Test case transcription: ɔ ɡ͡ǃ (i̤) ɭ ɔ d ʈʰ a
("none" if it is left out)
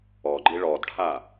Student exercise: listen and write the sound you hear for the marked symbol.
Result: i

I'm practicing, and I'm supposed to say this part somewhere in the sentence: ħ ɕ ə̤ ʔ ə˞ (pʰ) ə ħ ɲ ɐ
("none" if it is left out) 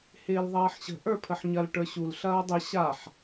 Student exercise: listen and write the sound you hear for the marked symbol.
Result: pʰ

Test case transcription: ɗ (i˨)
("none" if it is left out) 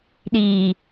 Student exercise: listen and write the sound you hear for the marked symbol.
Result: i˨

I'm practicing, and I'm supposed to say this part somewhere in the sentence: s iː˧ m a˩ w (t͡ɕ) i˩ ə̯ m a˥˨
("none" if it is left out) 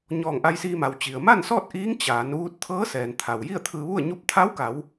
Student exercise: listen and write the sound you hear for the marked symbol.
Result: t͡ɕ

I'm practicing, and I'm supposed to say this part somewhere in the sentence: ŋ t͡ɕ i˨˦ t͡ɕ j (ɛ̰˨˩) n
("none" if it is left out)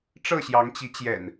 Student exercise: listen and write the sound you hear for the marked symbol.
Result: ɛ̰˨˩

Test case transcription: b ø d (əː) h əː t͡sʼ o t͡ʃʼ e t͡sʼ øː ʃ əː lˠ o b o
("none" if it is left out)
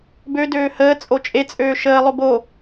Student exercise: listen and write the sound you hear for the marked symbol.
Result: øː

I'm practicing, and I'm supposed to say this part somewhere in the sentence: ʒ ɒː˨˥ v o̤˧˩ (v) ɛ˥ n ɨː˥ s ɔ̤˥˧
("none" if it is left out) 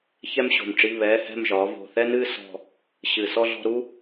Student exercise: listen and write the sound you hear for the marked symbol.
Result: θ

